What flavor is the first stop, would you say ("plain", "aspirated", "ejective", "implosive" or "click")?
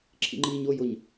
click